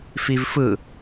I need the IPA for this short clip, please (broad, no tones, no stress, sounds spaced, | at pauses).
f i v f ɯ